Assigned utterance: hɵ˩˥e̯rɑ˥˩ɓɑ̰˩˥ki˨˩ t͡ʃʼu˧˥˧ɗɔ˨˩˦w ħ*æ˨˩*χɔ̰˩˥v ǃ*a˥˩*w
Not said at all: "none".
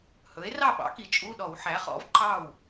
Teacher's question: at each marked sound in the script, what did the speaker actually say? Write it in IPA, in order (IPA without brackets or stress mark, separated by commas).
æ˩˥, ɑ˥˩